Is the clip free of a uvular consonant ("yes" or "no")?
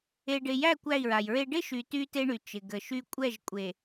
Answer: yes